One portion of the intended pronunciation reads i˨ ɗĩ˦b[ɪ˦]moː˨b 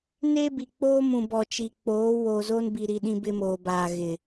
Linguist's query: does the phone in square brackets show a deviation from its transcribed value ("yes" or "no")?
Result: no